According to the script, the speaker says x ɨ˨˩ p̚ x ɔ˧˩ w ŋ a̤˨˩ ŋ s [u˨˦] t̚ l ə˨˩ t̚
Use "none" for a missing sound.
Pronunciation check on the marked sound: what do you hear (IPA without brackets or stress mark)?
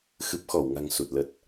u˨˩